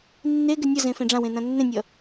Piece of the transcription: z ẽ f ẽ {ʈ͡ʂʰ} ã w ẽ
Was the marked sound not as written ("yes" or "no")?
yes